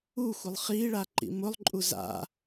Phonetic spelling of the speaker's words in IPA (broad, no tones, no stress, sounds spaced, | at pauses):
u xʷ ɪ lˠ χ i ɭ a ǃ ḭ m ʊ lˠ ǃʼ u z a̰